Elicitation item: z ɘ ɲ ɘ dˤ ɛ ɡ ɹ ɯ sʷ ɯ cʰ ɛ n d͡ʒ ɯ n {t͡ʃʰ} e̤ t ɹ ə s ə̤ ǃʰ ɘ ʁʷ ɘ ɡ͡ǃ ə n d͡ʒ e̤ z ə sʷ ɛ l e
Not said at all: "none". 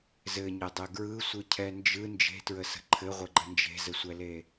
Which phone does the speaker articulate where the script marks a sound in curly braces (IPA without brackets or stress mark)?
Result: d͡ʒ